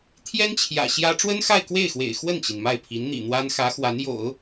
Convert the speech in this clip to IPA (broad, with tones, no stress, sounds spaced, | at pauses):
t̪ʰ j ɛ˥ n t͡ɕʰ j ä̰˨˩ ɕ j ä˥ ʈ͡ʂ w ə˥ n x a˥˧ ɪ̯ k w e˥˩ ɪ̯ x w ḛ˨˩ ɪ̯ x w ə˥˩ n t͡ɕ i˩ n m a˥˩ ɪ̯ pʰ i˧˥ n n̪ ḭ˨˩ n̪ w a˥ n x ä˧˥ x w a˧˥ n j o̰˨˩˦ ʊ̯